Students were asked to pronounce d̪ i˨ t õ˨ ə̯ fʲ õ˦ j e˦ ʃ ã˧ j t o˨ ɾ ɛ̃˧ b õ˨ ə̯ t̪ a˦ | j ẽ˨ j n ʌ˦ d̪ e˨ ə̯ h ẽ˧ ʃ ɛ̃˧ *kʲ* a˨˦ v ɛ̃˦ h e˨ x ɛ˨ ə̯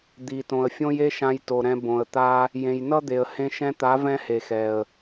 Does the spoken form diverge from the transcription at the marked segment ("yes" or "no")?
yes